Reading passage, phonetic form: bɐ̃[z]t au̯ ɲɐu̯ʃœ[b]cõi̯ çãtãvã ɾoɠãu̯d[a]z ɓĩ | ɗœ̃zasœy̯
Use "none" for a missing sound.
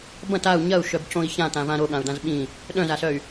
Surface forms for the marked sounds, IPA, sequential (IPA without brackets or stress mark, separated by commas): none, b, ã